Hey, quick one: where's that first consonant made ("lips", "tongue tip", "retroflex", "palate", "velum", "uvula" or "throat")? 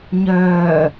palate